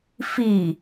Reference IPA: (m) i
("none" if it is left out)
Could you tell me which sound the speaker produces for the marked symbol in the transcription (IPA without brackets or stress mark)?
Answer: f